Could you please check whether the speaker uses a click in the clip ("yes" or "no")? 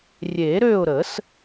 no